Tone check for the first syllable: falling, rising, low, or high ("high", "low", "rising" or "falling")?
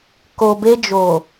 low